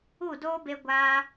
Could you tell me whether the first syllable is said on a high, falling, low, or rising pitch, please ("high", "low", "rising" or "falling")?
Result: falling